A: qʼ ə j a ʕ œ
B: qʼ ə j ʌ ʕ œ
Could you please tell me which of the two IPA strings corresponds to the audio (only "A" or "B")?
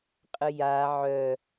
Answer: A